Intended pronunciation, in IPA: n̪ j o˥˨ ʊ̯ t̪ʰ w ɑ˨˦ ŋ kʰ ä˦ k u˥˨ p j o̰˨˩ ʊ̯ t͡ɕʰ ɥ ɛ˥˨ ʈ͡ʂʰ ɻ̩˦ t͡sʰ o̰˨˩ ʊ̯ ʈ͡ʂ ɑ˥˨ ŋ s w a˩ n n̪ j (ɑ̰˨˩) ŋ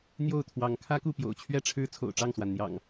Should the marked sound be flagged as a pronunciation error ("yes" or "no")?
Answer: no